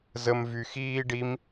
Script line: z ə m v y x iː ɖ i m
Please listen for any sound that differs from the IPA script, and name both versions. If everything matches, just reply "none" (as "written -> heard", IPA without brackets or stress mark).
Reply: none